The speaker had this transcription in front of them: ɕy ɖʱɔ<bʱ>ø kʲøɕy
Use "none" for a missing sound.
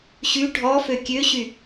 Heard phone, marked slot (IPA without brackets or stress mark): f